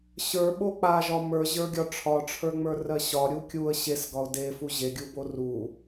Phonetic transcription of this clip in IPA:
ɕ ə˞ ɓ o k͡p a ʒ ɒ m ə˞ ʑ ə˞ ɡʲ ɒ ʈ͡ʂʰ ɒ ʈ͡ʂʰ ə˞ ŋ͡m ə˞ r ɜ ɕ ɒ ɾʲ u kʲ u ə̯ ɕ e s ɡ ɒ ʊ̯ d e f u ʑ e ɡʲ u b o r u

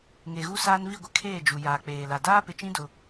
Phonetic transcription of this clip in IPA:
ŋ e˨ ɣ u˦ s aː˦ n v i˦˨ ɡʷ ɪ˦ kʰ eː˦˨ d͡ʒ u˨ j aː˨ k͡p eː˨ l a˨ d aː˦ p ɪ˨ t͡ʃ ĩ˦ d ʊ˦

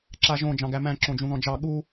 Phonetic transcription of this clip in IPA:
ǁ a ʒ õ d͡ʒ ɑ̃ ɡ æ m æ̃ ǁ õ d͡ʒ ũ ð ɔ̃ d͡ʒ ɑ ɠ u

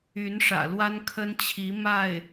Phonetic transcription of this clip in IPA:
y˧˥ n ʂ ä̰˨˩ l w a˥ n kʰ ə˥ n t͡ɕʰ i˧˥ m a˥˩ ɪ̯

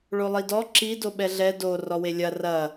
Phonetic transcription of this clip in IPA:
ɭ o lˠ i d ɔ ǁ i d o ɓ ɛ ɮ ɛ d o r ɔ w e lʲ ɐ r ɐ

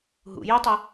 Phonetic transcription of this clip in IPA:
ɦ ṵ j y tˤ ʌ

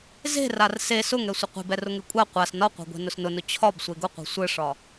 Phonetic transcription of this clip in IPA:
z e̤ r a r s e s ʊ ŋ ɛ sʷ ɘ qʷ e̤ b ɛ r ʊ ŋ e kʷʼ a qʷ a s n ɒ qʷ a̤ ɡʷ e̤ n ʊ s n ʊ n ʊ t͡ɕʰ ɒ b sʷ e ɡ ʊ qʷ e̤ sʷ ɘ ʂ ɒ

